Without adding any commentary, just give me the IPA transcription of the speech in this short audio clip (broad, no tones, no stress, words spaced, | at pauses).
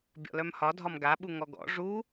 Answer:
bʲɔ̰lœmhɒ dʱɒmɡaɓu ŋɔɡɔ̰ ʐu